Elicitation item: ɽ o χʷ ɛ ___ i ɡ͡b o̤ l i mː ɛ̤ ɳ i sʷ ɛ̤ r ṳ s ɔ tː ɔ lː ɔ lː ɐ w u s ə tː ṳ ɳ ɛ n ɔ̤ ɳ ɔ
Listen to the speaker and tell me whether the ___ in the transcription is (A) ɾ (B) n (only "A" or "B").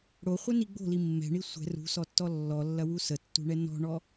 B